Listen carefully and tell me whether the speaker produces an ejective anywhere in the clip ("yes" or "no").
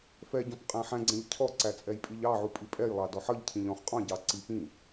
yes